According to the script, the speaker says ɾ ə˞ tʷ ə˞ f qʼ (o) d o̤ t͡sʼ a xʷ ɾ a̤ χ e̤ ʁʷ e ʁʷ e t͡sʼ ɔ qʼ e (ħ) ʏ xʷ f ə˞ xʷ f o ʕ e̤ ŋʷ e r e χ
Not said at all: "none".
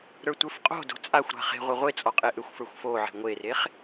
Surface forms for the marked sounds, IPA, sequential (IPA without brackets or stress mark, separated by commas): o̤, ʔ